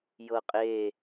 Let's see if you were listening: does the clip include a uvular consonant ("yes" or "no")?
yes